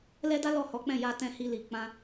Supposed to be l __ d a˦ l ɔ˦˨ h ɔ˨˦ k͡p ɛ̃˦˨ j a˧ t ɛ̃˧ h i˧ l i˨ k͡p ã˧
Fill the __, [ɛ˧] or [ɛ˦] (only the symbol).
ɛ˦